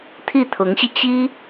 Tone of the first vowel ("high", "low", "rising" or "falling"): falling